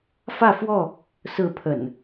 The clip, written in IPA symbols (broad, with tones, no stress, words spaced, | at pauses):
fä˥˨fwɔ˥˨ | sɹ̩˥˨pʰə̰˨˩n